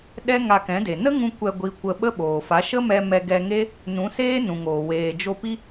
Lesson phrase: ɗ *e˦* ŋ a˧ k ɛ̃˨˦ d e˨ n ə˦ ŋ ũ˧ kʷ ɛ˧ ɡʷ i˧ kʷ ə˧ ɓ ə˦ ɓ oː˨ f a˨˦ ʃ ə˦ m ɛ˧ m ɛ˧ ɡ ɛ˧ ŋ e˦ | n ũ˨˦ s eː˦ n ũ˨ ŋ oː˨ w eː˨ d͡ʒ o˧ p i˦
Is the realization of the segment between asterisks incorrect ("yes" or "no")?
yes